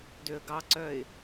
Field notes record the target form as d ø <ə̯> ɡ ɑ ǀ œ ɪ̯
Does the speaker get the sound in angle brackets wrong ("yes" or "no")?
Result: no